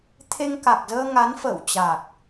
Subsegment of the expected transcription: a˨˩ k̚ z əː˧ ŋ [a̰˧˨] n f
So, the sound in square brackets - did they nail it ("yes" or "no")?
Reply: no